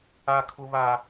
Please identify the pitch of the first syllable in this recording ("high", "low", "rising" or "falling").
low